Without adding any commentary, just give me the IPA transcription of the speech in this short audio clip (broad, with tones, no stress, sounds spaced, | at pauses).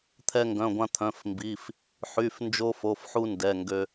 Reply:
t̪ʰ ɛ˧ ŋ ɡ œ̃˩˧˩ ɡʷ ã˧ t̪ʰ œ̃˩˧˩ f m b i˩˧˩ f | ħ y˩˧˩ f n d͡ʒ o˧ f o˩˧˩ f ħ u˧ n d ɛ˩˧˩ ŋ ɡ ø˧